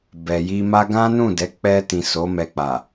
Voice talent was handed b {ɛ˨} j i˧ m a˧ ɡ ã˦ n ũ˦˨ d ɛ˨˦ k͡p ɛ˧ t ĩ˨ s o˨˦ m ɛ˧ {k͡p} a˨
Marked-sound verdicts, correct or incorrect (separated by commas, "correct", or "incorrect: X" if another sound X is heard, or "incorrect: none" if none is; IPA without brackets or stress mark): correct, correct